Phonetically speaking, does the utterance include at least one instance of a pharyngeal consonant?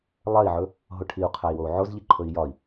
yes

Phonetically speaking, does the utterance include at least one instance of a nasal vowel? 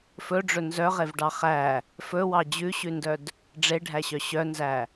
no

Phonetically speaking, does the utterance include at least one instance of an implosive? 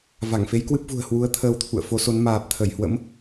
no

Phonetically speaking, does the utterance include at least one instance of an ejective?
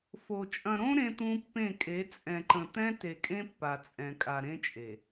yes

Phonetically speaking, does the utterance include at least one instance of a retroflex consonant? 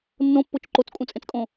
no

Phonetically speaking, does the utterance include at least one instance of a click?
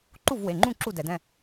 yes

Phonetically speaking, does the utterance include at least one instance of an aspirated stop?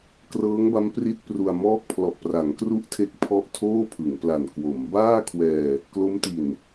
yes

